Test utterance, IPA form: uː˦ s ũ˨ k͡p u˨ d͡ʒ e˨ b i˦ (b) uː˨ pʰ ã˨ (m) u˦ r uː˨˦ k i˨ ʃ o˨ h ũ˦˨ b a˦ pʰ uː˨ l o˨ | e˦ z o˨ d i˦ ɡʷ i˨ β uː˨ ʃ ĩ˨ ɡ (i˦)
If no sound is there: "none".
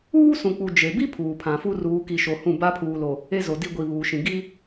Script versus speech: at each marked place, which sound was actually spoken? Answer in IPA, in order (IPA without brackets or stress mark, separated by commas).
pʰ, f, i˦